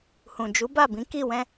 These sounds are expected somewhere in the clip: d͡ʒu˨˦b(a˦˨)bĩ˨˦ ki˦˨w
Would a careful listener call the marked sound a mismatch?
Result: no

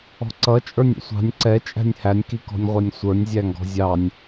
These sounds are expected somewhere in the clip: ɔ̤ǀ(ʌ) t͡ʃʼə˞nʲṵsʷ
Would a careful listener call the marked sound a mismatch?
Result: no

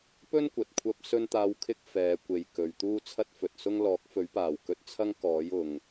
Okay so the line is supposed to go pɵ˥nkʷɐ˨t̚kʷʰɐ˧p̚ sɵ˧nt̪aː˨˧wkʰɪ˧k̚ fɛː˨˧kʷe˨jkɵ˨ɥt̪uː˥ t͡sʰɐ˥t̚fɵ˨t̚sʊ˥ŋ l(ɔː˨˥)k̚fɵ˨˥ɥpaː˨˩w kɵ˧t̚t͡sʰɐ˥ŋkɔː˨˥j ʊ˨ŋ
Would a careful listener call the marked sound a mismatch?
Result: no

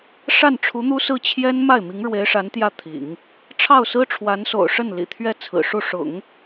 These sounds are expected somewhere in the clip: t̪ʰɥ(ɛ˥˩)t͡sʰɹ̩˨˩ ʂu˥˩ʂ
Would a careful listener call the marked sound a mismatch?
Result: no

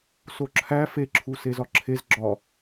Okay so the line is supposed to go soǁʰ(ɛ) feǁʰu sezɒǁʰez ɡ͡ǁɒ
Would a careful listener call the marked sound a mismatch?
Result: yes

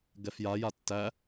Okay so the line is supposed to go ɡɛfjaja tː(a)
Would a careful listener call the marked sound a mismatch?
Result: yes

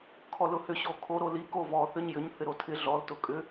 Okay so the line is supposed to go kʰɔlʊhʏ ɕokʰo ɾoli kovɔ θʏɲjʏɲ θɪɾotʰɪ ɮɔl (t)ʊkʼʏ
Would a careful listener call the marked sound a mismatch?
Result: no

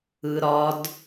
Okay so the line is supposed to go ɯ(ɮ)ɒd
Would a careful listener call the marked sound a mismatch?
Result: yes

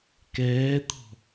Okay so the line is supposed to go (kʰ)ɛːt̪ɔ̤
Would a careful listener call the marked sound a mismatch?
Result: yes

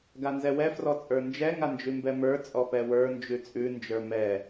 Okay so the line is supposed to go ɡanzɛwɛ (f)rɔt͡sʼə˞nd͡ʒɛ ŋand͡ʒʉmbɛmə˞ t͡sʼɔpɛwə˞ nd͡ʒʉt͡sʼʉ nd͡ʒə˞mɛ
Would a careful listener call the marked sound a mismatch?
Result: no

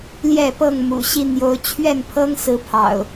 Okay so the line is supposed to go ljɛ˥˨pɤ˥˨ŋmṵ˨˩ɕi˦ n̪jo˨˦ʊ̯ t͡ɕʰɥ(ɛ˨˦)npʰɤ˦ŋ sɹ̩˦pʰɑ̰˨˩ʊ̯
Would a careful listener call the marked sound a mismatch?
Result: yes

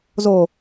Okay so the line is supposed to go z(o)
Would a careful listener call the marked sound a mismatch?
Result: no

